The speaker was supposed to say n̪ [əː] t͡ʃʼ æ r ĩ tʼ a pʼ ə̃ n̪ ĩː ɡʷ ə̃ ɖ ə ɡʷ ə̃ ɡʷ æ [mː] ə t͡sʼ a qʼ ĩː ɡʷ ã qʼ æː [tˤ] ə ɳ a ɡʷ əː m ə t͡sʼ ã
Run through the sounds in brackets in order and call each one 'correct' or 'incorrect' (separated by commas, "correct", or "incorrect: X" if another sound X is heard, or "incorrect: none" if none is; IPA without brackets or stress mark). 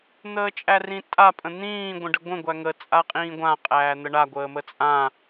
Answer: correct, incorrect: ŋ, incorrect: n̪